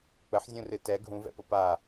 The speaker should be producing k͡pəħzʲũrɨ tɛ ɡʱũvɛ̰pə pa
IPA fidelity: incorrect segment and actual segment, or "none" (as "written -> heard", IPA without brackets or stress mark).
none